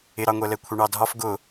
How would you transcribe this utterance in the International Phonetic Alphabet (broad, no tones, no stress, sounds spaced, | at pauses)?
ɪ ɾ ɑ ŋʷ ɛ l ɛ kʷʰ ɛ ɳ ɑ dʱ ɒ f ɡ ʊ